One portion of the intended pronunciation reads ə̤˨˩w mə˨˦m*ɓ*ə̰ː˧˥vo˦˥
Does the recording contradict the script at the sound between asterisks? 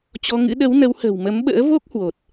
no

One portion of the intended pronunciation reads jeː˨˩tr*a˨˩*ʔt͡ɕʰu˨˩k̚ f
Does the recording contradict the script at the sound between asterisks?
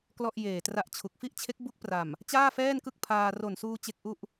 yes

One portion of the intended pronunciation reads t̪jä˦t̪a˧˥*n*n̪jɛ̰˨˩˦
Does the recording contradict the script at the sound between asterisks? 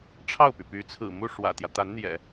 no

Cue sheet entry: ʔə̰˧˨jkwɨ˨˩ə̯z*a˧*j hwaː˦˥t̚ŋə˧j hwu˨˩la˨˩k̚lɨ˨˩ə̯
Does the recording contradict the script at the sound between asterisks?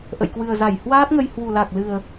yes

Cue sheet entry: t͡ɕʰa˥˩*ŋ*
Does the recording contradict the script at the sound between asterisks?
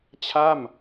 yes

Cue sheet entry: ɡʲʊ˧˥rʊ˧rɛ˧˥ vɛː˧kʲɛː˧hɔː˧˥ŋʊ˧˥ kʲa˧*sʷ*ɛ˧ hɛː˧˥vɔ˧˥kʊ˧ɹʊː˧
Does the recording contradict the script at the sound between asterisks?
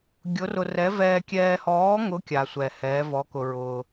no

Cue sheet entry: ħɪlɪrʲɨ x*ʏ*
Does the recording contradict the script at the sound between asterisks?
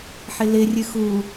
yes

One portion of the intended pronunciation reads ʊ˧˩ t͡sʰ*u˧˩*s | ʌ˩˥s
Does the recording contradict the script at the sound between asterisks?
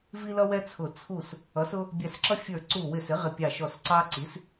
no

